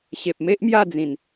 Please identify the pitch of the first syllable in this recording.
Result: low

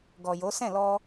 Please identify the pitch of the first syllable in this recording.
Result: low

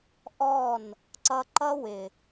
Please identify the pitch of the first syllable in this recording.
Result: falling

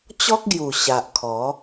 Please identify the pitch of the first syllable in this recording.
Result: high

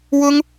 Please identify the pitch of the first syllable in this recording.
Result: high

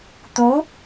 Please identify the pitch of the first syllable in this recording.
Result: rising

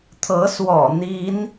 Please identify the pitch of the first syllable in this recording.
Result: rising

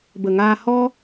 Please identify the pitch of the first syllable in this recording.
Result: low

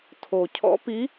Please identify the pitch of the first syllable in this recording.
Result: low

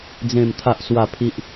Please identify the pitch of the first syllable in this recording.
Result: low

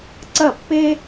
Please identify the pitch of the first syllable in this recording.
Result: falling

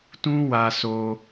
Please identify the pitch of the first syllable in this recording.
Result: high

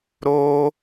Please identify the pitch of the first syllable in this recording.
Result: high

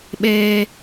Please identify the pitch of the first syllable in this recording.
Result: high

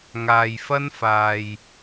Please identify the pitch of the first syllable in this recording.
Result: low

